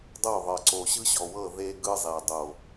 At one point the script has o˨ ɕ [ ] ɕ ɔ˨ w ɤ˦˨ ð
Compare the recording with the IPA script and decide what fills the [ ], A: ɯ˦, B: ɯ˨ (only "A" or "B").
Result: A